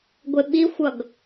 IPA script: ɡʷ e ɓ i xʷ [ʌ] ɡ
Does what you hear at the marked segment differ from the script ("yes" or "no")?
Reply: no